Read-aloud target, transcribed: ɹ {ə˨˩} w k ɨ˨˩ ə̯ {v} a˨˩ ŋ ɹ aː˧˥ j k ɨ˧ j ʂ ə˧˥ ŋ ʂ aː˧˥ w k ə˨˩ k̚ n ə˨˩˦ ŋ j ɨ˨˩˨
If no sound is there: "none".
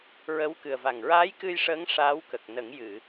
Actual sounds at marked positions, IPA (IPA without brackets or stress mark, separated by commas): ə˧˥, v